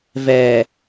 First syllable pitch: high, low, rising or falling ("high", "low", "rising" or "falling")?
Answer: low